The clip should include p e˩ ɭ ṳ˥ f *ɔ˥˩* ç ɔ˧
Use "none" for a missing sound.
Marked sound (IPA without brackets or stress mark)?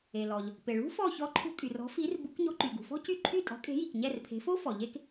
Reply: ɔ˥˩